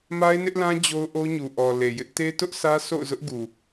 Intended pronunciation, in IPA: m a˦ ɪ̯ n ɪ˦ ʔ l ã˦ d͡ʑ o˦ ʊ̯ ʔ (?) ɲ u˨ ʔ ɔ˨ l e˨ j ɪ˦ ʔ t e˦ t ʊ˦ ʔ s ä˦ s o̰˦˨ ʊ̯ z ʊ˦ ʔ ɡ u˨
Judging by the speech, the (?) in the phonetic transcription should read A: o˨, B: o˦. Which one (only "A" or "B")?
B